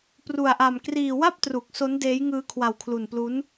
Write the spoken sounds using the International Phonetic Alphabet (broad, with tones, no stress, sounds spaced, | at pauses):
p r u˧ a̯ ʔ a˧ m k r iː˧ w a˥˩ p̚ t r u˨˩ k̚ s o˦˥ n d eː˦˥ j ŋ ɯː˦˥ kʰ w a˧ w kʰ l u˧ n p l u˦˥ n